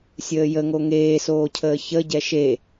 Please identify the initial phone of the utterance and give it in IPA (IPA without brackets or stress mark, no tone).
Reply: sʲ